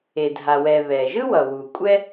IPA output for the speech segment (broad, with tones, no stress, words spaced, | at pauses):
e˩ dʱa˩wɛ˩ βɛ˩ʒɯ˥wʌ˩ wu˩ kʷʼɛ˥